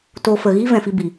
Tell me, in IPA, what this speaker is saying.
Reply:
t o˧ f ə˨ ɣ iː˦ v ɛ̃˨ f i˧ b i˨

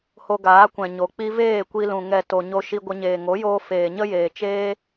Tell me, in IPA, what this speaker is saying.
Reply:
h o˧ ɡ aː˨˦ kʷ ɛ̃˨ ɲ o˨ k͡p i˧ v eː˦˨ kʷ i˧ l ũ˨ ŋ ɛ˨ t o˨ ɲ o˧ ʃ i˧ ɡʷ ə˧ ɲ eː˨ ŋ o˨˦ j oː˧ f eː˨ ɲ ə˦ j eː˨ t͡ʃ eː˦

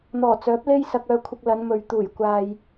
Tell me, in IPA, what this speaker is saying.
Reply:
n̪ ɔː˨˩ t͡s œː˨˥ p̚ l e˥ j s ɐ˧ k̚ œː˧ kʷʰ ɪ˧ k̚ l ɐ˨˧ n m ɵ˨ ɥ t̪ uː˨˩ j kʷ aː˨ j

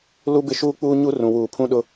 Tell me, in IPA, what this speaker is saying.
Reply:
l u˦ b ɪ˦ ʃ uː˦ k͡p uː˦ ɲ u˦ r ũ˨ w uː˨ pʰ ũ˦ ɗ ʊ˦

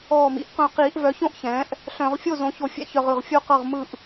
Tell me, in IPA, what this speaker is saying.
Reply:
ɔː˧˩ m ḭ˩˥ ʔ q œ̃˧˩ q iː˧˩˧ ʔ v œ˩˥ ç õ˥˩ ʔ ç ɛ̃ː˩˥ ʔ | ɬ œ̃˧˩˧ ʁ fʲ o˥˩ z õ˩˥ ç o˧˩˧ fʲ ɛ̰˧˩ ç œ˧˩ ʁ ɯ˧˩ ʁ fʲ o˥˩ q ɤ˥˩ ʁ m ɯ˥˩ ʔ

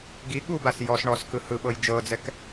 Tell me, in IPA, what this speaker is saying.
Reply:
ɡ i ɠ u b a s j ɔ s ɳ ɔ s k ɯ h ɯ ɓ ɤ j d͡ʒ ɤ d͡z ɛ k

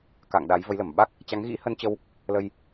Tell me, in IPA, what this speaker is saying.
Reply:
k a̰˧˨ ŋ ɗ a˨˦ j v ə˨˦ j l ə˧˩ m ɓ a˦˥ k̚ | t͡ɕ a˨˦ ŋ ɣ ḭ˧˥ h ə˧ n t͡ɕ ə˧ w | l ə˧ j

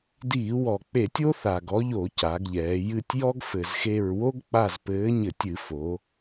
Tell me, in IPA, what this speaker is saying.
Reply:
d iː˧˩˧ w ɔ˨˩ k͡p e˧˩˧ tʲ o˥ θ a˨˩ ɡ ɔ˨˥ ʎ o˧˩˧ c a˩˧ ɡ ʎ ɛː˩˧ j ɨ˦˨ tʲ j ɔ˥ ɡ f ɘ˨˩ z x e˦˨ ɹ w o˥ ɡ k͡p a˦˨ z p ɘː˨˥ ɲ ɘ˧˩˧ tʲ ɨ˧˩˧ f o˩˧

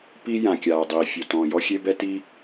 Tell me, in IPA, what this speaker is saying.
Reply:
p i˥ j ã˩ kʲ aː˩ dˤ iː˩ fʲ o˩ t ɔ̃ː˩ j ɔ˥ xʲ e˥ b ɛ˥ t i˥

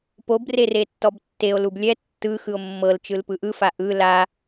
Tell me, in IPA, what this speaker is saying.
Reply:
p o b r e r e tː ɔ b tː e o̯ l u b lʲ ɛ tː ɯ x ɯ o̯ mː ɤ l t͡ʃ ɯ l p ɯ ʔ ɯ f a ʔ ɯ l a

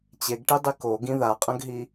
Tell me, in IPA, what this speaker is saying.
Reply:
t͡ɕ e ɡ ʈ i dˤ i k o ɡ ĩ ð a qʼ ɐ̃ ɡ ɦ i

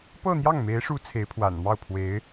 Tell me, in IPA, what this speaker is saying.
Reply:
p ɤ˥˧ n̪ j ɑ˥˩ ŋ m e˧˥ ɪ̯ ʂ u˧˥ t͡sʰ e˧˥ ɪ̯ pʰ w a̰˨˩ n m ɑ˥˩ ʊ̯ pʰ w e˧˥ ɪ̯

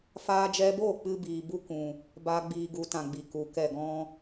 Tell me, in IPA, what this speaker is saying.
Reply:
f aː˧ d͡ʒ ɛ˧ b o˦˨ k͡p ɨ˦ b iː˨ b u˦ k ũ˨ | b aː˦ ɡ͡b iː˧ ɡ u˨˦ t ã˨ ɡ͡b i˨ k u˨˦ k ɛ˦˨ ɡ ɔ̃˧

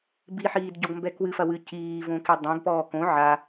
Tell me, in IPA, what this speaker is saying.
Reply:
b i ħ iː d ɟ ɔ ɡ m b ɛ k w ɨ f ɐ w ɨ c iː v õ k i dˤ ẽ ɡ p ɔː k õ ʕ a

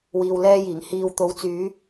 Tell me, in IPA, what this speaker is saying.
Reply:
w iː˧ w l ɛː˥ j iː˨˩ ŋ h iː˨ w t̪ o˨˥ w t͡s yː˨˧

